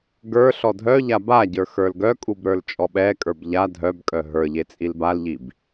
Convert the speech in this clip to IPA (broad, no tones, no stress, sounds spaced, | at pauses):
ɡ ə˞ ɬ ɔ dʱ œ ʎ a b a ɟ ə˞ x ə˞ l ɡ œ kʼ u b ɾ ə˞ l t͡ʃʼ ɔ ɓ ɛ kʼ ə˞ b ʎ a dʱ œ b kʼ œ ɦ ə˞ ʎ e t͡sʼ i l b a l ʎ i b